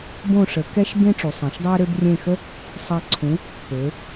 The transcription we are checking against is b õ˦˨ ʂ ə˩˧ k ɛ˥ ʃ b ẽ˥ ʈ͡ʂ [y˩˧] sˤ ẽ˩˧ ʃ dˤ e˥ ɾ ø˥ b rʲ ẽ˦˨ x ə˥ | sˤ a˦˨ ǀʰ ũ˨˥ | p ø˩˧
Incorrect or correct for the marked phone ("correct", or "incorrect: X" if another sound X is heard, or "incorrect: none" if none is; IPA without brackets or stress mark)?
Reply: incorrect: u˩˧